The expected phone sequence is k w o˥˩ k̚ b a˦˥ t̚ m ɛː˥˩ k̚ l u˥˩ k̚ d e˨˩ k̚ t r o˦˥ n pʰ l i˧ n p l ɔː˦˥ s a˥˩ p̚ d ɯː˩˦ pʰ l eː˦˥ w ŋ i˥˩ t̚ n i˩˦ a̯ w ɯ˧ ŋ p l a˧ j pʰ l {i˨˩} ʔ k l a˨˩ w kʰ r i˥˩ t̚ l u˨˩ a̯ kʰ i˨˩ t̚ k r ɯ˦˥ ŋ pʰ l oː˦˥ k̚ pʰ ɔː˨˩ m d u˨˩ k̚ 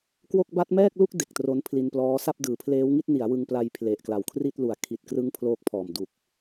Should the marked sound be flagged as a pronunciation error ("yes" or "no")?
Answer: yes